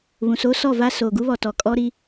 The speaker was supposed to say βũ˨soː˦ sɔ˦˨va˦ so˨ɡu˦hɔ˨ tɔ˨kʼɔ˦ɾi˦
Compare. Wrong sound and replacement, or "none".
h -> β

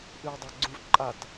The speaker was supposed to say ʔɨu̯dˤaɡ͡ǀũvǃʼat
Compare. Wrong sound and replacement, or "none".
none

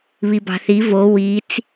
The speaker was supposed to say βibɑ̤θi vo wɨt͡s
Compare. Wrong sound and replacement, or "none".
ɨ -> i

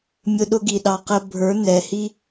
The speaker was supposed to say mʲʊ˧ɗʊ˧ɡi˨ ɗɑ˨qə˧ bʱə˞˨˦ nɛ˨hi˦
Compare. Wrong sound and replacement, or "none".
none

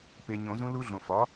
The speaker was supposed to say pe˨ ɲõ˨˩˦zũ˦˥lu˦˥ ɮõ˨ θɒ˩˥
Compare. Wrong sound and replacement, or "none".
θ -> f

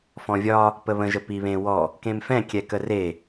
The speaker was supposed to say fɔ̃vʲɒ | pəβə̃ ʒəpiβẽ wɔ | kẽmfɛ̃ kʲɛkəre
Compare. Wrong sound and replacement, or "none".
none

